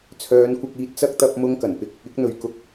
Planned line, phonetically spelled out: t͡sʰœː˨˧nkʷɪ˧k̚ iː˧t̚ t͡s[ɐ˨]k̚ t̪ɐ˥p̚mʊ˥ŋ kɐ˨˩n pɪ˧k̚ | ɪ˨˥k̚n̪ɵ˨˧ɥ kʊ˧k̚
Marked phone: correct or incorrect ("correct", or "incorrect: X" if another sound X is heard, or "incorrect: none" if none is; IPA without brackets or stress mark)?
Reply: incorrect: ɐ˥